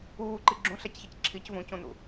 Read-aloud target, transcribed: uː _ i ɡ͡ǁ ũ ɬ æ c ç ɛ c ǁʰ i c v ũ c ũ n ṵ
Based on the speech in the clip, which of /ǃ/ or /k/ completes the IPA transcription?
ǃ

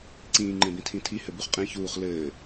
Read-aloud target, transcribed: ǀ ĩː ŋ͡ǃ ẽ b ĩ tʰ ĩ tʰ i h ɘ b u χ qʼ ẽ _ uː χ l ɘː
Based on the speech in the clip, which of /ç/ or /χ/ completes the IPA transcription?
ç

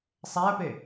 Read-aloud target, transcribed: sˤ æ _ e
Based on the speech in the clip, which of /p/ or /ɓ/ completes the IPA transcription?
p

